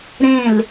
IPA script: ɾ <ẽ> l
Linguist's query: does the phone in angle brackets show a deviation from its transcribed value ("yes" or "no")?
no